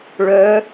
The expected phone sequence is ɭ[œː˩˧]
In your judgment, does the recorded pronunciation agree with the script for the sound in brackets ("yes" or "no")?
yes